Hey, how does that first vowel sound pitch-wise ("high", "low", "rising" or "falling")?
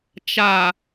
low